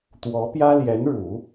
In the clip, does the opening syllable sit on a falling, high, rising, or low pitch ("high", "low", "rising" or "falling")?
rising